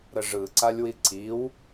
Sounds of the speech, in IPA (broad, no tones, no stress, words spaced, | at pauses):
ɾəʐɯǀalʲwi ǀiw